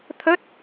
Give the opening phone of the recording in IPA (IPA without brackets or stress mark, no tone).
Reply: t̪ʰ